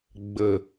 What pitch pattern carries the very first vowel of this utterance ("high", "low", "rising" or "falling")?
low